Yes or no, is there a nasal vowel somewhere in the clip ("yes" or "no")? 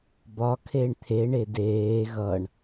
no